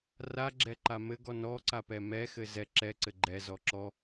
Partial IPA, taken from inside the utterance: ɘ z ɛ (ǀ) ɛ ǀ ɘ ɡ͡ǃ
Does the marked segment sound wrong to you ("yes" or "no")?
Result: yes